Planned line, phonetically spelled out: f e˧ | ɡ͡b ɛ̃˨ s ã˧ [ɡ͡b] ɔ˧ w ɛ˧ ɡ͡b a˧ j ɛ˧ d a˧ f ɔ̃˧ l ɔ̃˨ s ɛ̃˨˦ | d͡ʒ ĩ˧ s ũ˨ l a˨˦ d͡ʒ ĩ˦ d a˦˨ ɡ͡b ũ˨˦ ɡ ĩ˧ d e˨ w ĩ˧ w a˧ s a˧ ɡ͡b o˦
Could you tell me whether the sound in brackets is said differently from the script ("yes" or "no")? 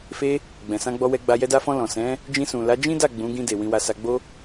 no